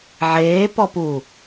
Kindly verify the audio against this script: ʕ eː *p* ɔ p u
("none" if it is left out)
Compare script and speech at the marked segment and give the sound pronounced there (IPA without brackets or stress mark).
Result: p